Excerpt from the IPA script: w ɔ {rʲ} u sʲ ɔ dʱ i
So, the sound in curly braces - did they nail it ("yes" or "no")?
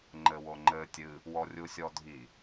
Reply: yes